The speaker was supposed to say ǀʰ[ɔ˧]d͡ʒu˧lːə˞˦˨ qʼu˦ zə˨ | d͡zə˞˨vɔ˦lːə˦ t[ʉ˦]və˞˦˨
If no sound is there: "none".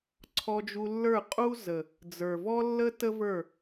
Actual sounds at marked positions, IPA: ɔ˧, ə˦

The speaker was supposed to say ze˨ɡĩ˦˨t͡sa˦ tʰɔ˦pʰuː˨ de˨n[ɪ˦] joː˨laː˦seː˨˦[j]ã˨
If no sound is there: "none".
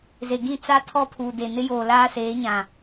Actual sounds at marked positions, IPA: ɪ˦, ɲ

